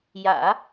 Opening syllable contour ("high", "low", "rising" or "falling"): low